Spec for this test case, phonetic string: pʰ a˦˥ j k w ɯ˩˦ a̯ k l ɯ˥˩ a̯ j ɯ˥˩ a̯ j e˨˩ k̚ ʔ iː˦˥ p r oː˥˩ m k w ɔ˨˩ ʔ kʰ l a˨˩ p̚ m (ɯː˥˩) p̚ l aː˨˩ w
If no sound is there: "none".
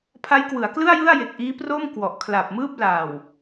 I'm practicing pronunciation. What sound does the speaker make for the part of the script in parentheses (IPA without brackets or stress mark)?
ɯː˥˩